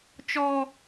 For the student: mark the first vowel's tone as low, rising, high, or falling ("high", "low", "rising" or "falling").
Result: high